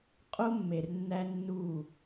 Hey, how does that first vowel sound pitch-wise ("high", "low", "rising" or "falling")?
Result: high